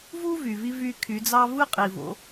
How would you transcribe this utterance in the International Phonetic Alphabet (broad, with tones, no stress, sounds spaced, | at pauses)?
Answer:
v u˥ v y˩ v i˧ v y˧ kʰ y˩˧ d͡z ɑ˥ v ɯ˥ qʼ i˩ v o̰˩˧